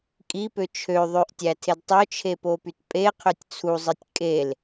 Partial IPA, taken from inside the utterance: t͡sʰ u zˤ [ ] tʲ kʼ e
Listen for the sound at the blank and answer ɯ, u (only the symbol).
ɯ